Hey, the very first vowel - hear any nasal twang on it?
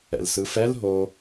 no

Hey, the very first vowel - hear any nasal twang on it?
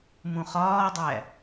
yes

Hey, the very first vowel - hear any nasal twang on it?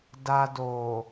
no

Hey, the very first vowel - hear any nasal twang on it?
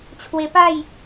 no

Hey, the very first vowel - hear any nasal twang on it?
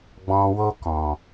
yes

